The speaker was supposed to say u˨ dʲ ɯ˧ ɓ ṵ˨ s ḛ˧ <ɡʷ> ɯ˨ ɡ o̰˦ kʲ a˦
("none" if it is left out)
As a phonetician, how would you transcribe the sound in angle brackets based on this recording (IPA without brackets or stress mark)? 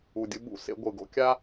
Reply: ɡʷ